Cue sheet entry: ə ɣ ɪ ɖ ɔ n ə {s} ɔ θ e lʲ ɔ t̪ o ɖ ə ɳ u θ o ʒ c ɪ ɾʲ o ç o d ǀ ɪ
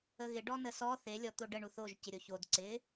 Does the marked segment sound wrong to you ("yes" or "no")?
no